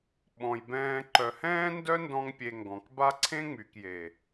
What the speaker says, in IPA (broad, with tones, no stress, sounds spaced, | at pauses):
ɓ ɔ̃˨ j b ɛ̃ː˧ ǃ œ˨ h ɛ̃ː˦ n d œ˦ n d ɔ̃˦ ŋ pʲ e˧ ŋ ɡ ɔ̃˨ k b a˦ ǀʰ ẽ˦ ŋ͡m y˨ k j e˨